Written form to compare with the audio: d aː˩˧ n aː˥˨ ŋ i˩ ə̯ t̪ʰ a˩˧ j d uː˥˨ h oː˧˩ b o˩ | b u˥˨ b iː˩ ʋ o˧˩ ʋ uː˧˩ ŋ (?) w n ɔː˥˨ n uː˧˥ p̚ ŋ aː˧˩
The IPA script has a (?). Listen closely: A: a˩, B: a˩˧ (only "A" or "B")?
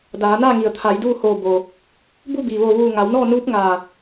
B